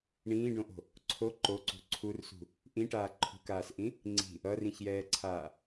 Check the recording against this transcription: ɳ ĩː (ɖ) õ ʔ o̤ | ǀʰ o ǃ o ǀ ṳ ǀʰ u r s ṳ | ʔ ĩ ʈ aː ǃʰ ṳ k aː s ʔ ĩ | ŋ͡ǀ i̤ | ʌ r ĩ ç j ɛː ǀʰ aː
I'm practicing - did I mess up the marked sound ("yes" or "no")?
no